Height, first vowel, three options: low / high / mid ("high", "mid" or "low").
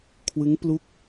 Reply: high